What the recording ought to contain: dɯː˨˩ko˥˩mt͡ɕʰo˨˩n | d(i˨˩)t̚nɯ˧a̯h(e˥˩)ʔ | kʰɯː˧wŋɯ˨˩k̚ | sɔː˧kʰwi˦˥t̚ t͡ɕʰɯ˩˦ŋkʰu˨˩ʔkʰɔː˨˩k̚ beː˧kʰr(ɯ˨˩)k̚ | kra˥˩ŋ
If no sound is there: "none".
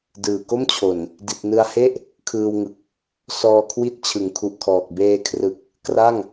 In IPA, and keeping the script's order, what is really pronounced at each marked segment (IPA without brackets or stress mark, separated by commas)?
i˨˩, e˥˩, ɯ˨˩